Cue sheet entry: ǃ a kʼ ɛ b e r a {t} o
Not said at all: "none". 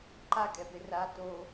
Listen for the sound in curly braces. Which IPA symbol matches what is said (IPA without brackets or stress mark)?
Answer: t